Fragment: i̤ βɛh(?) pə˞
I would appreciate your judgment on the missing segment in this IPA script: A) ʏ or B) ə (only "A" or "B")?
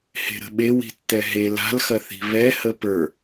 B